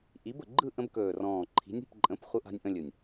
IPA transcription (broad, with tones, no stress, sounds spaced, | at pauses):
ʔ i˨˥ b ə˨˩ ɡ͡ǃ ɯ˥˨ ʔ ə̃˦ b k ɵː˨˩ r ɔ̃ː˨˩ ǃʰ i̤˨˥ nʲ i̤˥˨ p ǃʼ ə̃˨˥ p χʷ ɯ˦ ʔ a̤˦ nʲ ʔ ə̃˦ lʲ ɯ˨˩ nʲ